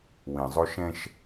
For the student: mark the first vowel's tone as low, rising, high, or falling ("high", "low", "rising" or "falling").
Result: low